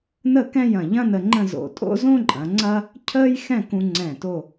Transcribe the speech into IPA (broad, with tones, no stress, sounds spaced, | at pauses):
n ə˥˧ k ɛ̃˥˧ j ɐ̃˧˩ ʎ ɐ̃˥ n ə˧ ŋ͡ǃ ə̃˥˧ z o̰˧ tʼ o̰˥ z õ˥ ǃʼ ɐ̃˩˧ ŋ͡ǀ ɐ˥ | cʰ əː˥ j x ɛ̃˥˧ k ũ˧ ŋ͡ǀ ɛ̃˧˩ t o˥˧